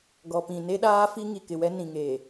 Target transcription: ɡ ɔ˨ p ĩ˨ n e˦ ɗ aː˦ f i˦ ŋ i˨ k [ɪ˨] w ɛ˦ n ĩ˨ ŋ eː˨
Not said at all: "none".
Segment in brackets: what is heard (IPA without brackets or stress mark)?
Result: ɪ˨